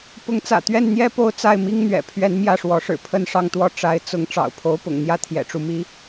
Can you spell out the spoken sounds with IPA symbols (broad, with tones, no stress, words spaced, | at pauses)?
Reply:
pʊ˧˥ŋt͡sä̰˨˩t̪ɥɛ˥˩nn̪jɛ˥ po˥˧ʊ̯ t͡sa˥˩ɪ̯mi˥ŋn̪ɥɛ̰˨˩ pʰɥɛ˧˥n mjä˥˩ʂwɔ˧˥ʂɻ̩˨˩ pʰə˥˧nʂɑ˥˧ŋt̪wɔ˥˩ ʈ͡ʂa˧˥ɪ̯t͡sʊ˧˥ŋ ʈ͡ʂɑ̰˨˩ʊ̯pʰo˧˥ʊ̯pʊ̰˨˩ŋn̪jä˥ t̪ʰjɛ̰˨˩ʈ͡ʂu˥˩mi˥